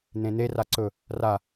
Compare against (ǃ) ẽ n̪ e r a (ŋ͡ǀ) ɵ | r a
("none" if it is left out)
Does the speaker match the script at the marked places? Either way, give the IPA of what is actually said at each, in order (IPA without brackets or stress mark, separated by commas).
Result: n̪, ǀ